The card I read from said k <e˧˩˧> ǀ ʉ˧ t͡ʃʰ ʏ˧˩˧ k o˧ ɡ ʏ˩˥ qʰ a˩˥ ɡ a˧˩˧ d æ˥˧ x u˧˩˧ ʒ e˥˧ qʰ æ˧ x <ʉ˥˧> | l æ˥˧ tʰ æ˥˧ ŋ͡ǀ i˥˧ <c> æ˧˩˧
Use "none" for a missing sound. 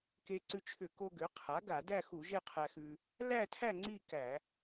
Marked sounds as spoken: e˧, ʉ˧, k

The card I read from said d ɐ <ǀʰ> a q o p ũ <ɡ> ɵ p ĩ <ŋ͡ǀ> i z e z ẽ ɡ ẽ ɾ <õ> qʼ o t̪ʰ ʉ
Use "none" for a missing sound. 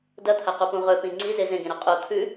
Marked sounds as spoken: t̪ʰ, ʁ, ŋ͡ǀ, o

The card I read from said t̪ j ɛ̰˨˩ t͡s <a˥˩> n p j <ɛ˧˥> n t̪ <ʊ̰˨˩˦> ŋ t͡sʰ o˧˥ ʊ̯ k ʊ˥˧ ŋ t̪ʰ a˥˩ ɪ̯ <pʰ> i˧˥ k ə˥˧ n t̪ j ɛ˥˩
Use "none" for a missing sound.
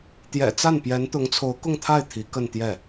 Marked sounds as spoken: a˥˩, ɛ˧˥, ʊ˧˥, t̪ʰ

